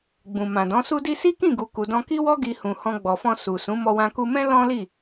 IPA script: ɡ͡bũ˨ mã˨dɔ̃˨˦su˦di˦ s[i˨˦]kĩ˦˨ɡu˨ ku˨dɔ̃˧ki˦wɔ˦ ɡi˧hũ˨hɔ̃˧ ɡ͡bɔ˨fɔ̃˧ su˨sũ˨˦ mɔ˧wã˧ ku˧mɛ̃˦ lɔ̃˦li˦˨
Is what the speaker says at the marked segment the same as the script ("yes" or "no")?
no